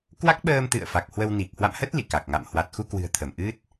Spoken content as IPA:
k w a˦˥ k̚ ɓ əː˧ m t̪ ɨ̰˧˨ ə̯ f a˨˩ k̚ h w ə˧ w n i˨˩ k̚ h w a̰˧˨ m h ə˦˥ t̚ l ḭ˧˨ k a˨˩ k̚ ŋ a̰˧˨ m h w a˨˩ t̚ x u˧ k w ɨ̤˨˩ ə̯ t̪ʰ ə˧˩ m ʔ ɨ˦˥ t̚

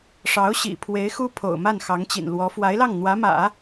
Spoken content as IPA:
ʂ ɑ˧˥ ʊ̯ ɕ ḭ˨˩ pʰ w e˧˥ ɪ̯ x u˥ pʰ o̰˨˩ ʊ̯ m a˥˩ n x ɑ˧˥ ŋ t͡ɕ ḭ˨˩ n l w ɔ˧˥ f w a˧˥ ɪ̯ l ɑ˥˩ ŋ n̪ w ä˧˥ m ä̰˨˩˦

